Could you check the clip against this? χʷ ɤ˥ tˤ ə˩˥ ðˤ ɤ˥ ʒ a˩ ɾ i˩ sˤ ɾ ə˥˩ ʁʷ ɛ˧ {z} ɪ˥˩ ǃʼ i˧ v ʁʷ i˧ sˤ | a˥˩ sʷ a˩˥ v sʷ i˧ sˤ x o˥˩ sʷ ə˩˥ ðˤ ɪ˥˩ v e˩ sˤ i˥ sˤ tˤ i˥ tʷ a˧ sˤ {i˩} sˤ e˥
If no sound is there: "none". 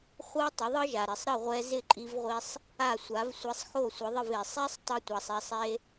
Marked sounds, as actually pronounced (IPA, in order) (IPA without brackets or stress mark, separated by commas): z, i˧